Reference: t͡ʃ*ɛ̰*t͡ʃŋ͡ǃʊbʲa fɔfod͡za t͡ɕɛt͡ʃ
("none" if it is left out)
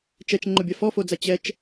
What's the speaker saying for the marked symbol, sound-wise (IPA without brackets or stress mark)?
ɛ